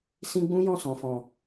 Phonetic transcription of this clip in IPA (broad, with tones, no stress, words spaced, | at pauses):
sĩ˦ ɡ͡bũ˦ jɔ̃˦˨sɔ̃˨fɔ̃˨